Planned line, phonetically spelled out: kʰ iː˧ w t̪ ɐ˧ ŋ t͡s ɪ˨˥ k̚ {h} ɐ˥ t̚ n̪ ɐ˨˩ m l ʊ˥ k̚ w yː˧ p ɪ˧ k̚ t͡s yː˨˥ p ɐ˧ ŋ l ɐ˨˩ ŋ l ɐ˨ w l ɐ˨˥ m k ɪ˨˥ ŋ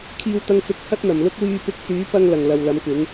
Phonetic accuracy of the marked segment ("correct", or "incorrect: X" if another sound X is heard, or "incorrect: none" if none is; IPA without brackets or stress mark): correct